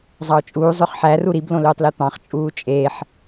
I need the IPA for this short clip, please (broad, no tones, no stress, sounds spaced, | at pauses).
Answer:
zˤ ɑ ʊ̯ t͡ʃʼ uː zˤ ø χ ħ æ r u ɾ i b l õ l øː tˤ l e t̪ ɑ̃ χ t͡ʃʼ uː t͡ʃʼ e ħ